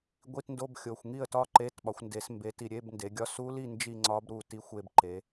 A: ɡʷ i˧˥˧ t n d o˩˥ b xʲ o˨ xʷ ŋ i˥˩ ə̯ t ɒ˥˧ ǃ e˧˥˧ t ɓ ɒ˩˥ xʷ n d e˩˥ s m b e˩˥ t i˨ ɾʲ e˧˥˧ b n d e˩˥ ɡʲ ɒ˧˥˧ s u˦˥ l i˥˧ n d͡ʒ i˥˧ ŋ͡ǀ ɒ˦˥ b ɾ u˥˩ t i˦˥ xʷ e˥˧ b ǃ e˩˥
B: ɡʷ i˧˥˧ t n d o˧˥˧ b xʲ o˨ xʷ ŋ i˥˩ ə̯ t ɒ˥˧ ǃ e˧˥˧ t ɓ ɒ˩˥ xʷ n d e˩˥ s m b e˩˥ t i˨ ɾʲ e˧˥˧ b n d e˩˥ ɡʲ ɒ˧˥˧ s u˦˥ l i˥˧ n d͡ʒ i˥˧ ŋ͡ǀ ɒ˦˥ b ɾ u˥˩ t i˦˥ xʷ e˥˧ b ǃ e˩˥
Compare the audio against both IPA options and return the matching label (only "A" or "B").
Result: B